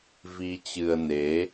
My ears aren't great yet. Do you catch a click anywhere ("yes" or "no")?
no